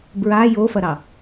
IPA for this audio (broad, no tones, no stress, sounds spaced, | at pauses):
b ɹ a j o f ɐ ɾ ɑ